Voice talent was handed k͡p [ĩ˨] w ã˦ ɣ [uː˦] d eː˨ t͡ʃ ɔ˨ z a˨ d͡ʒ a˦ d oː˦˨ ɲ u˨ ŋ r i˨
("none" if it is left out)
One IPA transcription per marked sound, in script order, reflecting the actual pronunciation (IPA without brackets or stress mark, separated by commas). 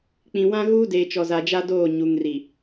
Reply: ĩ˨, uː˦